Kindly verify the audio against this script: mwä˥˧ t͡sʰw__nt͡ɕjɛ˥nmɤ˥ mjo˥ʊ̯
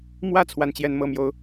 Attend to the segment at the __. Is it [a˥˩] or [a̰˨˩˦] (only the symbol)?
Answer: a˥˩